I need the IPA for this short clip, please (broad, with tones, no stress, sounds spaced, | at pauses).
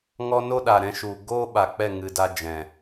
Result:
ŋ ɔ˧ n o˦ ɗ a˨ ɾ ɛ̃˧ ʃ u˨ ɡ o˦ ɓ a˨ k͡p ɛ˦˨ ŋ ɨ˨ d a˧ d͡ʒ ɛ̃˨